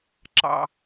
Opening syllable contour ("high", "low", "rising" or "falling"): low